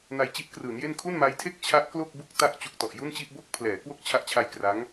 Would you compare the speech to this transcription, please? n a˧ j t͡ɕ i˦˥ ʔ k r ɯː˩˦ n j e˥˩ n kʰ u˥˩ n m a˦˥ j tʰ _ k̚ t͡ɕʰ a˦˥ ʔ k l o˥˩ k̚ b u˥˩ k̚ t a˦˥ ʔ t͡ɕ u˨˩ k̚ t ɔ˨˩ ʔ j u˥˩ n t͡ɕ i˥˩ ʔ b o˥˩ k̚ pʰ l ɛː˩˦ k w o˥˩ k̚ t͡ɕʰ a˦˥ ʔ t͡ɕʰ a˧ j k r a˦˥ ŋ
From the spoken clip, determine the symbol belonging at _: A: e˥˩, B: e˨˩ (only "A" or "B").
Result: A